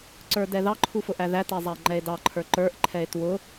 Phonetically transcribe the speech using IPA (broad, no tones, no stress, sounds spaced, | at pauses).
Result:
ǀ ə˞ d ɛ ð ɑ ǃʰ u f ʊ ʔ æ ð æ t ɛ zˤ æ e̯ ŋ͡ǃ ɛ e̯ d ɑ ǃʰ ə˞ ǃ ə˞ ʔ ǃʰ ɛ e̯ t w ʊ